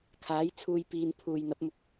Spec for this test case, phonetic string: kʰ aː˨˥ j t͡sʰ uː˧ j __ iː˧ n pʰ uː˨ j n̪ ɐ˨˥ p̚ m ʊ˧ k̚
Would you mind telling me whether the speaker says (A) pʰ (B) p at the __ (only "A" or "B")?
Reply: B